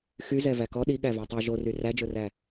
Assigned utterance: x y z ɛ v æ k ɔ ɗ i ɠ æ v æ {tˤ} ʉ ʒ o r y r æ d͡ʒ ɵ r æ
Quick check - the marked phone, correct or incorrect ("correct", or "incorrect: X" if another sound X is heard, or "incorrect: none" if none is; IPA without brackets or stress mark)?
correct